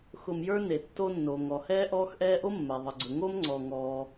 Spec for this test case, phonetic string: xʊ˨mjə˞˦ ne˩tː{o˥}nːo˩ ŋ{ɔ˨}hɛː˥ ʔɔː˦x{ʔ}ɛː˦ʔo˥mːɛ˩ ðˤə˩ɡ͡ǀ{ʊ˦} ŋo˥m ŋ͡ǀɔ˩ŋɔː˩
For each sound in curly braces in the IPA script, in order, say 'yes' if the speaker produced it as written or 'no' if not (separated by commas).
no, no, yes, no